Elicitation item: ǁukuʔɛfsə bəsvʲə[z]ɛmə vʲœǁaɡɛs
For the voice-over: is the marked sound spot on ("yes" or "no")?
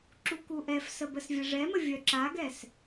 no